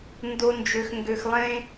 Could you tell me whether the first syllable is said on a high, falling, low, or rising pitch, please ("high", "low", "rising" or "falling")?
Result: low